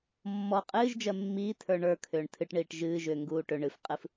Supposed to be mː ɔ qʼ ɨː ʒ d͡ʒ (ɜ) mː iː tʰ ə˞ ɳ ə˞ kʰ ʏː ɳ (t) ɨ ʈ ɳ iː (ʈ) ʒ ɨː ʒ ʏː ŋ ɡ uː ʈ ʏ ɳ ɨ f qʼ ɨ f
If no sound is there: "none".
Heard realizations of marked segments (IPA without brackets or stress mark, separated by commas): ɜ, tʰ, ʈ